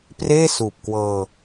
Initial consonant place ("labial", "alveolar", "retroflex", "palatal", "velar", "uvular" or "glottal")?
labial